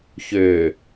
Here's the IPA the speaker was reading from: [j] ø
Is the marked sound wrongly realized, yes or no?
yes